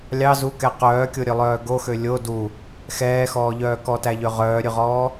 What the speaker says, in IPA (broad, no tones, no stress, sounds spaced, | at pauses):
lʲ ɑ z u k ɛ q œː kʲ o ɾʲ ø lˠ œː ɡ o x ø lʲ o d u | x ɛː x ɔː ʎ œː k ɔ t æ ʎ ø ʁ œː ɾʲ ʉ ʁ ɔː